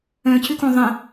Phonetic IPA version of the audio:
œ̃ c ʏ k õ ðˤ ə̃

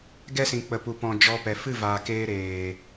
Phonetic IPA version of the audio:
ɡ ɛ˦ s ĩ˨ k͡p ə˨ p u˨ p ɔ̃˨ d͡ʒ ɔ˧ p ɛ˨ f ɨ˦˨ v aː˨ k eː˧ ɾ eː˨

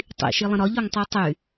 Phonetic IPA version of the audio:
tˤ ḭ ʃ i lˠ ə̃ ɾ ɒ ʎ ɒ ŋ tˤ y tˤ y

